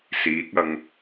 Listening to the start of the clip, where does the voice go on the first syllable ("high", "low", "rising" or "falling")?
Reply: rising